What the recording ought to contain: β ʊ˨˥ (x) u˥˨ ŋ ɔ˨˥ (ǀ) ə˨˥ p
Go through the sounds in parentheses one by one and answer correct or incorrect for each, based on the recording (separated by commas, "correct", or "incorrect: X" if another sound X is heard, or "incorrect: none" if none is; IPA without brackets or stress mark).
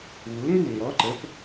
incorrect: ŋ, incorrect: ǃ